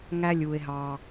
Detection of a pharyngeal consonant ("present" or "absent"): absent